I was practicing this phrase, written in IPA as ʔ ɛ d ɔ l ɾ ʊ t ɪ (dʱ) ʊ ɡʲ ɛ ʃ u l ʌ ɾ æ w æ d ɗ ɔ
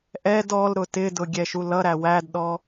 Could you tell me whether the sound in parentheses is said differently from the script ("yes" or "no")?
yes